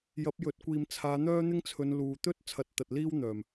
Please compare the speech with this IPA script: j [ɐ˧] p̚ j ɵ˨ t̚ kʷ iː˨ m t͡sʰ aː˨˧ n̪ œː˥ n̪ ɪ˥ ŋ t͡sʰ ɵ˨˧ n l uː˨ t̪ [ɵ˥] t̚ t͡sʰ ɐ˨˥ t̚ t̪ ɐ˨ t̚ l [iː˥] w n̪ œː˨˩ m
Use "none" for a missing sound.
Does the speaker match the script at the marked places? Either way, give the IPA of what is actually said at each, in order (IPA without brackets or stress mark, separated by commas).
ɐ˨˥, ɵ˥, iː˥